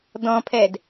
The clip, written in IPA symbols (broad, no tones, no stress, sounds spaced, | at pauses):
d ɔ̃ pʰ ɛ d